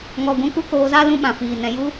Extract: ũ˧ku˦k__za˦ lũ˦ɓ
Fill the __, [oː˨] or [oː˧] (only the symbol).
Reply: oː˧